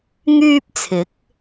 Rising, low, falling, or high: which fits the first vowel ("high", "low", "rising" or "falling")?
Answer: high